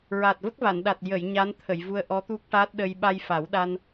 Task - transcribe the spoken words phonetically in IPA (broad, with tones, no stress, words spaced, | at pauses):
ɹa˨˩t̚və˦˥k̚va˨˩˨nɗa˨˩t̚ jə˨˩˨j ɲa˧˥nt̪ʰə˨˩˨jvu˧ə̯ ʔɔ˧˥t̪u˦˥k̚ʈa˦˥t̚ɗə˧j ɓa˧jfa˨˩˦wɗa˧n